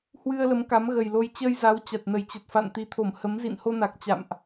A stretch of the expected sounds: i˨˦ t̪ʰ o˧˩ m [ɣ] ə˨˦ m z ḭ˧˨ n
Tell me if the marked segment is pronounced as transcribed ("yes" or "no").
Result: no